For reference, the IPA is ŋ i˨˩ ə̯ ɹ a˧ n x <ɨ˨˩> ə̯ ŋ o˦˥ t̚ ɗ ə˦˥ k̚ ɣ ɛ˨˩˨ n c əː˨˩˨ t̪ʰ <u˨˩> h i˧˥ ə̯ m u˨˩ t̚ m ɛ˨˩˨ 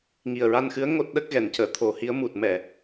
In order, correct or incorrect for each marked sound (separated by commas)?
incorrect, incorrect